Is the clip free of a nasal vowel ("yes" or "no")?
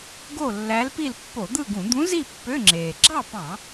no